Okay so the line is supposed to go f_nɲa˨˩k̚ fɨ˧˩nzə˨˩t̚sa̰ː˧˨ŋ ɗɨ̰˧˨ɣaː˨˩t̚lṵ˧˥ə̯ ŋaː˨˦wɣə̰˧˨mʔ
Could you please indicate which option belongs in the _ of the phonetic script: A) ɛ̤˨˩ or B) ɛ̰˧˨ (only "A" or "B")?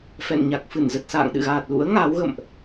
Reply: B